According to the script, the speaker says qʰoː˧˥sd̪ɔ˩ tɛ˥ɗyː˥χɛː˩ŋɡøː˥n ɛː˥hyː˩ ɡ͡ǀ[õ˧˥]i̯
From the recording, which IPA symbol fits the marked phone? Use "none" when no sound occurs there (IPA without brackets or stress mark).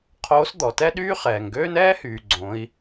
õ˩˧